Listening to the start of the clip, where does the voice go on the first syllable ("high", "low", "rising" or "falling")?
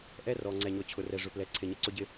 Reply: high